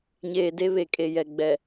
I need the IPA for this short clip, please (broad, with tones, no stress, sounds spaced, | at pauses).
ɲ eː˨ d e˦ β e˨ kʼ e˨ j ɛ˨ ɡ͡b ɛ˨